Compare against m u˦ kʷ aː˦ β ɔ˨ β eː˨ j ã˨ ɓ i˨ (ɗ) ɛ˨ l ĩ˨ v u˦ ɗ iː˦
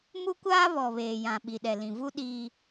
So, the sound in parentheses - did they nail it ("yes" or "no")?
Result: yes